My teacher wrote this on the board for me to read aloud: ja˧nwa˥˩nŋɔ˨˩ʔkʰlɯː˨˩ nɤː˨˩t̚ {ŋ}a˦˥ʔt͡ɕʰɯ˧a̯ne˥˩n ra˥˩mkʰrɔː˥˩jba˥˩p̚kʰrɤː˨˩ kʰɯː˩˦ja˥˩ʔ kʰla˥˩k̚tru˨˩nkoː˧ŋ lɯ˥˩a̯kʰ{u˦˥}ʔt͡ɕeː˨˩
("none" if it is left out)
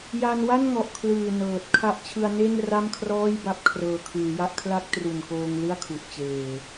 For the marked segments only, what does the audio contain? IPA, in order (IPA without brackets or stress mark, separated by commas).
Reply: kʰ, u˨˩